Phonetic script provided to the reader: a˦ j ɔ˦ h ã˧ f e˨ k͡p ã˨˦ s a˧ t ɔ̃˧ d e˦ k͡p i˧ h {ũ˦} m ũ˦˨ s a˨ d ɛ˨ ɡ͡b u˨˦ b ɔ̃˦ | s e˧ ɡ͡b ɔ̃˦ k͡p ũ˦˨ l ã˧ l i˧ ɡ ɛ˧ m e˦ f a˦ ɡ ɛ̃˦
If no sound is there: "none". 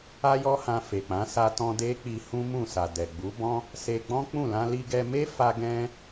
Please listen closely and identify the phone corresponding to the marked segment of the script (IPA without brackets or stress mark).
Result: ũ˦